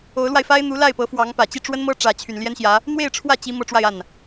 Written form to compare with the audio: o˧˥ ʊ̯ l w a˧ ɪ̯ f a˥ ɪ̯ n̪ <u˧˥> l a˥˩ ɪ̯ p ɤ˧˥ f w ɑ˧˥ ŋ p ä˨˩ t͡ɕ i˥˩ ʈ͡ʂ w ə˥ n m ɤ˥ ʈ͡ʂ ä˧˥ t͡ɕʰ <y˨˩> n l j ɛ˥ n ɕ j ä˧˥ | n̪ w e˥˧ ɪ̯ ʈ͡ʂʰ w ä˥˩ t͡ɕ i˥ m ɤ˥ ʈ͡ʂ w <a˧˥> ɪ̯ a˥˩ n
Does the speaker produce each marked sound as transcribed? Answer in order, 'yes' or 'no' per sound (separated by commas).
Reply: yes, yes, no